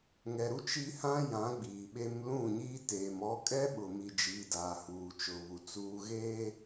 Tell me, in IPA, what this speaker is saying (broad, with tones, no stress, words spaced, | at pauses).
ŋɛ˨ɾu˦ t͡ʃi˦hã˦jã˨˦ ɡ͡biː˨ɓe˦m lũ˦˨ɲiː˦teː˨m ɔ˦ kʼɛ˦ ɓʊ˨mi˨d͡ʒiː˨daː˨ huː˨t͡ʃʊ˨βu˨ t͡suː˨ɣeː˦